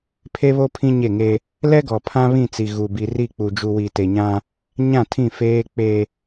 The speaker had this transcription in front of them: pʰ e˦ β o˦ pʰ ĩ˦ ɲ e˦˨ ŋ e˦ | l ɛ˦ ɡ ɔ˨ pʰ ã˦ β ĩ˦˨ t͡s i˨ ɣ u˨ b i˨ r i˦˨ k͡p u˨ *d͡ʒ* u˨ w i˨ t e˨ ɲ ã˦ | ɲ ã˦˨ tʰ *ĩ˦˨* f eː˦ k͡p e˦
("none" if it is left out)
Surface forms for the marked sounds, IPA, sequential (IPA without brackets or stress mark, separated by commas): d͡ʒ, ĩ˦˨